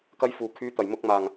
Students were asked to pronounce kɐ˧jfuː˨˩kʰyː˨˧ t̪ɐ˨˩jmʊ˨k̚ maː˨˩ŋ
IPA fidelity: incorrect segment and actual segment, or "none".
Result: none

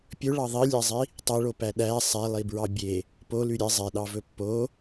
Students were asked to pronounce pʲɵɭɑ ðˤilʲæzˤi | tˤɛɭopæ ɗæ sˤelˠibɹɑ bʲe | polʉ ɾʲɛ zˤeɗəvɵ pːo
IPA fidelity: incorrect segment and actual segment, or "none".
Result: ə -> ɑ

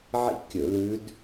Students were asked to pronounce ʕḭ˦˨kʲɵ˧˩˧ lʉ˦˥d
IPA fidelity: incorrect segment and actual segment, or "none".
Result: none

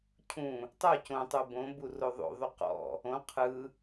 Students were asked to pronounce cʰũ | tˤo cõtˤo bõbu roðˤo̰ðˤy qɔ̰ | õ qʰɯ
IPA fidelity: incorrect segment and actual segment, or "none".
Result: none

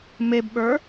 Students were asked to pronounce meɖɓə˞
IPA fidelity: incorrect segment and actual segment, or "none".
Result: ɖ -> b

